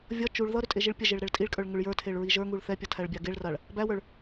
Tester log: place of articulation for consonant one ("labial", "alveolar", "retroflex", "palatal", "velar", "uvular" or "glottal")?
labial